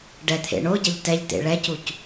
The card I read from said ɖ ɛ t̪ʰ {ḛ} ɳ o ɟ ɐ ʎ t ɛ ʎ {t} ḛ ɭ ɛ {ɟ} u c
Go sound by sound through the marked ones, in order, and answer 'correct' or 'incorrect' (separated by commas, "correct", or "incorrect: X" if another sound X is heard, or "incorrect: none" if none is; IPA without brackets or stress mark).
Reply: correct, correct, incorrect: c